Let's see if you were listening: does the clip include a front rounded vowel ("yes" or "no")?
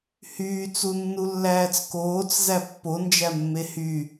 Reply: yes